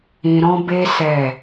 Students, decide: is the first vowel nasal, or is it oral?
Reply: nasal